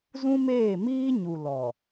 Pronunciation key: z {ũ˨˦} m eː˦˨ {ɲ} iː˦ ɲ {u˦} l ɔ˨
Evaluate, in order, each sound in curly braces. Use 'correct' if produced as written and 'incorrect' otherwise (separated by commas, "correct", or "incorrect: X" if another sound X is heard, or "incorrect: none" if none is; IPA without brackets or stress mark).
incorrect: ũ˦, incorrect: m, incorrect: u˨